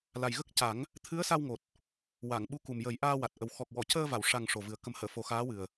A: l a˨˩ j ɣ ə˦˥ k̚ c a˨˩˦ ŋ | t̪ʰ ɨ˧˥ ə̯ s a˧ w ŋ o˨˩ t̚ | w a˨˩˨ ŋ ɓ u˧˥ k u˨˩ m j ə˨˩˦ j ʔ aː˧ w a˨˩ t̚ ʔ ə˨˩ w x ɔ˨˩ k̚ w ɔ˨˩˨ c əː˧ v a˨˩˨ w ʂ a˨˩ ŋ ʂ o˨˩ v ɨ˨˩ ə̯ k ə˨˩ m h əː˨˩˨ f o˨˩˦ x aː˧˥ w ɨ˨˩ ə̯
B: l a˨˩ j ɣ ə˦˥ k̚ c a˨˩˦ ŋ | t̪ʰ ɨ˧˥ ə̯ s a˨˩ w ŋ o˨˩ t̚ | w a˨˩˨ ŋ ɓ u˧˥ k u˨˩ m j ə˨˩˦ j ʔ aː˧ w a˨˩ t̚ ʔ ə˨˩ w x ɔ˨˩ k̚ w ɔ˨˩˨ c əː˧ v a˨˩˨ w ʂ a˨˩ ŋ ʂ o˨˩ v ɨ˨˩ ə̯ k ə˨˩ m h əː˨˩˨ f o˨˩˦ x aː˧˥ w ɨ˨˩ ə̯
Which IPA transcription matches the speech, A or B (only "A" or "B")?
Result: A